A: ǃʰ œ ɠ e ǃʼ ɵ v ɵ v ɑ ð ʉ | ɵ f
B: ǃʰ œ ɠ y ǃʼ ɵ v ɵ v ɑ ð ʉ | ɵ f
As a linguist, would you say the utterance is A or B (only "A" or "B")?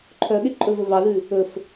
A